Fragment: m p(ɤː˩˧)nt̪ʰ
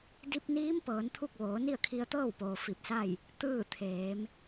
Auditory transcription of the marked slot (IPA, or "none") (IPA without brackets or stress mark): ɤː˩˧